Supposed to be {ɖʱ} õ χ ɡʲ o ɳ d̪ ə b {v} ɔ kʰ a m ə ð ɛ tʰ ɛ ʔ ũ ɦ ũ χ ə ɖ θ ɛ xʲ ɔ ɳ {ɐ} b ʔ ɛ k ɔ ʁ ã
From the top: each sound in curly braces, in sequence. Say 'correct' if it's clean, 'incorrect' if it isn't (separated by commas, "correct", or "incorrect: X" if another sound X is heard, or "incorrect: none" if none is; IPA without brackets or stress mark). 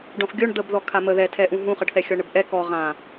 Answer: incorrect: ɖ, incorrect: ð, incorrect: ə